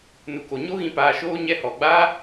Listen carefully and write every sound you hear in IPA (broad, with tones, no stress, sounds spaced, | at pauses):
n u˨ k o˨ ɲ o˦ ɣ ĩ˧ p aː˧ ʃ oː˦ ɲ ɛ˧ h ɔ˨ ɡ͡b aː˦